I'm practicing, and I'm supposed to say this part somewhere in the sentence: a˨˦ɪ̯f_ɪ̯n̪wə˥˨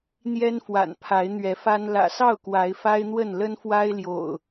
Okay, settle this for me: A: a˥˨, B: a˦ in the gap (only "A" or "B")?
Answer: B